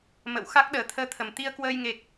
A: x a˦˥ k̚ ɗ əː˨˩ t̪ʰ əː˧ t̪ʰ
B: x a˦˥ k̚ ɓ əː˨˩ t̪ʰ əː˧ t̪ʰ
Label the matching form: A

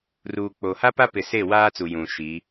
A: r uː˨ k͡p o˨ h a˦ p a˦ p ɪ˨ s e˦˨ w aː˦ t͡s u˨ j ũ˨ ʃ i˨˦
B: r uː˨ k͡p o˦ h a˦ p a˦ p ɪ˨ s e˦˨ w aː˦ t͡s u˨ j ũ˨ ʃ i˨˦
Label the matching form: A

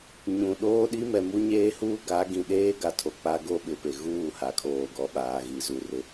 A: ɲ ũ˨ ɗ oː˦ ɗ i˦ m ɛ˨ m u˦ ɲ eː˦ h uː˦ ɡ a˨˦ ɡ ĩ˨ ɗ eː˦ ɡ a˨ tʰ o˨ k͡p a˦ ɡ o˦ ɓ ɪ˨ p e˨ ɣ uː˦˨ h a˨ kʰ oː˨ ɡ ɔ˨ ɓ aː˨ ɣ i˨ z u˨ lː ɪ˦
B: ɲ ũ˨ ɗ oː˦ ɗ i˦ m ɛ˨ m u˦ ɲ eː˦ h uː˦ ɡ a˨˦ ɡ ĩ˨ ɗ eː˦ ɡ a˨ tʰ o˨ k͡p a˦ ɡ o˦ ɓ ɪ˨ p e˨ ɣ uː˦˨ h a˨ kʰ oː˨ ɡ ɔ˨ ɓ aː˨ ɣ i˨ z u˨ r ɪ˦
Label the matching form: B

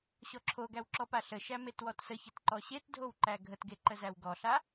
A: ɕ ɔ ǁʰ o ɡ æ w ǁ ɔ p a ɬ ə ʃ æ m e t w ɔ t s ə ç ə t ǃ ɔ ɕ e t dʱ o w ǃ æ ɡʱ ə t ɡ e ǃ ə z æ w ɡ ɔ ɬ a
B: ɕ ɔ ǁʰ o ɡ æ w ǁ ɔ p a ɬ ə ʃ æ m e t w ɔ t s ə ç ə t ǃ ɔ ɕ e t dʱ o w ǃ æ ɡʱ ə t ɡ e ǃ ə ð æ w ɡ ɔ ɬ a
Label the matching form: A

